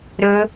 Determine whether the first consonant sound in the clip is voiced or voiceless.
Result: voiced